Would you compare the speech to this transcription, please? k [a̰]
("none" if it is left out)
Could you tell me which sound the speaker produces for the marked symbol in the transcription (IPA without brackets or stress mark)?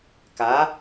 a